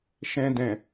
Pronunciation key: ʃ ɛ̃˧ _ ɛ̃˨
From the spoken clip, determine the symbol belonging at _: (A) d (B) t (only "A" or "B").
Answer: A